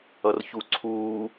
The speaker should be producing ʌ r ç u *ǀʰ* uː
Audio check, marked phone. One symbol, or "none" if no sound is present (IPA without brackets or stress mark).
ǀʰ